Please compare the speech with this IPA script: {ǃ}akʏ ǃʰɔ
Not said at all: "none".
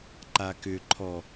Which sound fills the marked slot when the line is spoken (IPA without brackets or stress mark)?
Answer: ǃ